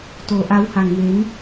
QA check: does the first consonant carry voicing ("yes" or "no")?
no